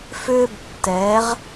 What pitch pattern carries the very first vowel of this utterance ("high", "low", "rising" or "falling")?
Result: high